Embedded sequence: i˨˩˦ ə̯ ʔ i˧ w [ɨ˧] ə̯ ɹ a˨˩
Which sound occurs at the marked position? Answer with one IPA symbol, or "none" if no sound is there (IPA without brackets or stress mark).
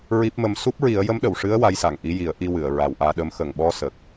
ɨ˨˩˨